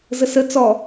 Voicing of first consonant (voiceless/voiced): voiced